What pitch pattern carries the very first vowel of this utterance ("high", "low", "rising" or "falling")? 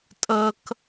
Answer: high